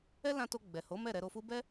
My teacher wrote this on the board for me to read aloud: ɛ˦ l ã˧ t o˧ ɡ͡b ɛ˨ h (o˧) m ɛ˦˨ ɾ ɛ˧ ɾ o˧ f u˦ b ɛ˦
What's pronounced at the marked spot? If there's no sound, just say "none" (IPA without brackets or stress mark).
o˨˦